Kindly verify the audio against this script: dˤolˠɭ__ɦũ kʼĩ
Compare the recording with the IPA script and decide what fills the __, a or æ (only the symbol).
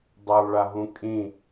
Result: a